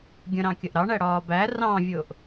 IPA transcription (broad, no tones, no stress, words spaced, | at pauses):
ɡʲə̃ɾɑ̃ kʲəʔɾɑɳæ ɽɒːbæ rɑ̃vʲʊːʔ